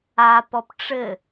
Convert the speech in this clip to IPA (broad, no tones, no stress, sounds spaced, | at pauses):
a p ɔ p ʈ͡ʂ ɘ